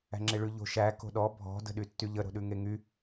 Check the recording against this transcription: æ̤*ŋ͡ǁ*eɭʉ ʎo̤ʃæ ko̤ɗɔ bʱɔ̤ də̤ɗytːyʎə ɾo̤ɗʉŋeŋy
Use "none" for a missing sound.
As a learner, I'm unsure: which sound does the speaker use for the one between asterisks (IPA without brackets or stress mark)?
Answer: ŋ͡ǁ